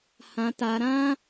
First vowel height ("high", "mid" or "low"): low